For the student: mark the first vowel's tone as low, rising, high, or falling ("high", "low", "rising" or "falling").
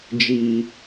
low